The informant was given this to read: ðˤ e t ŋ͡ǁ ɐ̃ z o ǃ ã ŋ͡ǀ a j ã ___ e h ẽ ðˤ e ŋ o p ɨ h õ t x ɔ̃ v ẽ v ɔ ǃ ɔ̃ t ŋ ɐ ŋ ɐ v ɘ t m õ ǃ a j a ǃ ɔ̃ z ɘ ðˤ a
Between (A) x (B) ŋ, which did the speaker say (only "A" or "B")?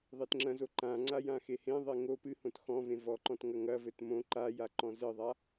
A